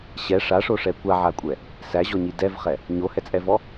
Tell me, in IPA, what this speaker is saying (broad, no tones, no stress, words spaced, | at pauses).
ɕɛ ʂaʂoʂɛ kʷaʕakʷʼɛ | sæʑɔɲi dɛvχɛ | ɲohɛt͡sʼɛvɔ